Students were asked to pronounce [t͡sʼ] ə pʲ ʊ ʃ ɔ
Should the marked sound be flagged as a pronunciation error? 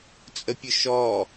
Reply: no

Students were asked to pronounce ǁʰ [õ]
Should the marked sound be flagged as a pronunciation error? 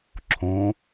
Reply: no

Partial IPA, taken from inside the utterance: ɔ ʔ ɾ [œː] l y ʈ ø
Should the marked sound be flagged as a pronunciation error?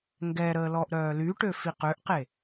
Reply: no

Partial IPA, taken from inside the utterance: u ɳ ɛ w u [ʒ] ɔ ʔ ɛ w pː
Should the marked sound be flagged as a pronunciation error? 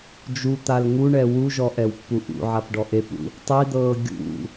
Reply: no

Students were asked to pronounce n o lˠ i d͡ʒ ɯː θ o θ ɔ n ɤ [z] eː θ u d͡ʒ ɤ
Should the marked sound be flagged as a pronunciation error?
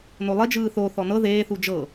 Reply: yes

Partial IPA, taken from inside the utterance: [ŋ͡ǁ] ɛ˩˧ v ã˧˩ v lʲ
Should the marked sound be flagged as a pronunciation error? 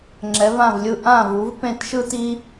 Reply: no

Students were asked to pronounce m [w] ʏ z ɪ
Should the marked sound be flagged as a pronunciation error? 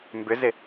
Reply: yes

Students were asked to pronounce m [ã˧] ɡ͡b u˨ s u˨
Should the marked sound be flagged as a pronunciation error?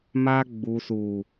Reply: yes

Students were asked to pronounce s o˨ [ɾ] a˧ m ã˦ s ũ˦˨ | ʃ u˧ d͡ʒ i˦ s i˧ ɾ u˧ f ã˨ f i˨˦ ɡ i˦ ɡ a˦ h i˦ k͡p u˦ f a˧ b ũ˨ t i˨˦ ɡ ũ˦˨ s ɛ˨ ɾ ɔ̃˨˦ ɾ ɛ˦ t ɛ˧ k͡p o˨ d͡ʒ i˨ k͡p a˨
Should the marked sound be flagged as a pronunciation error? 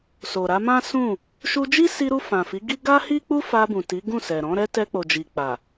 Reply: no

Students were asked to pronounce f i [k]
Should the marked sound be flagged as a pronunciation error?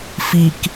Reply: no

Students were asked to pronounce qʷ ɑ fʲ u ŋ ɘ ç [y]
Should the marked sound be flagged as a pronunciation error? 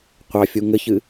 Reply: yes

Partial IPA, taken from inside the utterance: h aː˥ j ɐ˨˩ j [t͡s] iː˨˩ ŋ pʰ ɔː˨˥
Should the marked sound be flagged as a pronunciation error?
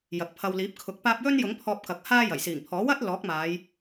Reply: yes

